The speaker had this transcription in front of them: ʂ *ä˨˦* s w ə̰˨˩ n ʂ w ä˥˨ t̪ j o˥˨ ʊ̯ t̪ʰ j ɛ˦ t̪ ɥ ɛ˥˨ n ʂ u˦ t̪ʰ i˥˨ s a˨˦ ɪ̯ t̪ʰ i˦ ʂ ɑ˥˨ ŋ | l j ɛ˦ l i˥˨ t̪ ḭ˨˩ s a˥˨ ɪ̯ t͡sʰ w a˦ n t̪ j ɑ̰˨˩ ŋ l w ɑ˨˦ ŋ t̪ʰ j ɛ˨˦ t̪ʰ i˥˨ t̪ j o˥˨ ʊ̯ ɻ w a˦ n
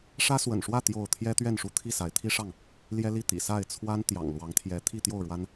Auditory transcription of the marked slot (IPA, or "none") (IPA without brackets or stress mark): ä˦